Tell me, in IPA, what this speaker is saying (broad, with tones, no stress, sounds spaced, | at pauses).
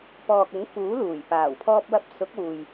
p ɔː˨ k̚ ʊ˨˥ ŋ f uː˨˥ l uː˨˩ j p aː˨˩ w pʰ ɔː˧ p̚ w ɐ˧ p̚ s ʊ˨˥ k̚ w uː˨ j